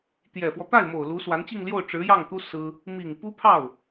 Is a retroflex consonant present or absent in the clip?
present